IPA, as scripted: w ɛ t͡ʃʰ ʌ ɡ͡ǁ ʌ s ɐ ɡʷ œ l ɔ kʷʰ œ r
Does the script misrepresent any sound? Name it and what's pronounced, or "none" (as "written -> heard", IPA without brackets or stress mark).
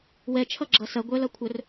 ɔ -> ʌ